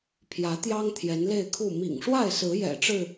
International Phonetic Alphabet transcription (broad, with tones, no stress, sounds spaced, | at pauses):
pʰ j ä˨˦ t̪ j ɑ˦ ŋ t̪ʰ j ɛ˨˦ n l e˥˨ ɪ̯ kʰ u˥˨ m ḭ˨˩ ŋ ʂ w a˥˨ ɪ̯ s ɹ̩˨˦ j ɛ̰˨˩ ʈ͡ʂ ɻ̩˥˨